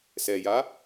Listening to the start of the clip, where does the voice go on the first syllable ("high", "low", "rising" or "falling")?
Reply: low